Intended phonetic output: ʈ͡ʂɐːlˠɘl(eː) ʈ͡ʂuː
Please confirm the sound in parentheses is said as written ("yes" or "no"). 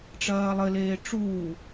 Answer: yes